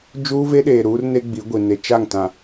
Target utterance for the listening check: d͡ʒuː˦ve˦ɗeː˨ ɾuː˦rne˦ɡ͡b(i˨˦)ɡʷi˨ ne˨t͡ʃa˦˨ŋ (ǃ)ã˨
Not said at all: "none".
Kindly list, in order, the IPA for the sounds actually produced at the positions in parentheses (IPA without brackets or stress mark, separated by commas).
i˨˦, t